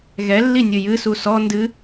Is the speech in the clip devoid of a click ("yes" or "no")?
yes